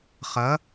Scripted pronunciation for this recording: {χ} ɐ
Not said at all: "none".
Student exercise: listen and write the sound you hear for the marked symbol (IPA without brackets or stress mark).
χ